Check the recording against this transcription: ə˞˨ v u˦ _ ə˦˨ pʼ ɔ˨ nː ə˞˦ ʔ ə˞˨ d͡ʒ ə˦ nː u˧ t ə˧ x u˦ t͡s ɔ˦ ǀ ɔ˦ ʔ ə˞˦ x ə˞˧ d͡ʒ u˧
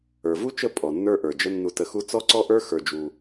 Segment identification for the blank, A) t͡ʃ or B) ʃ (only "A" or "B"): A